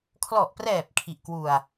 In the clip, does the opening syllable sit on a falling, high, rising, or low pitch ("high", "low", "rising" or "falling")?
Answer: low